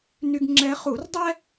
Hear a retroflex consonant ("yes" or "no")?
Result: no